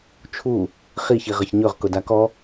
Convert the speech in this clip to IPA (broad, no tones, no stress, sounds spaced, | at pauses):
t͡ʃʰ u | χ i ç i ʁ ə ç ɲ ɵ ʁ k ʊ d a k ɔ